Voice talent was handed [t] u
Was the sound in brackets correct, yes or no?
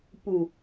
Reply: no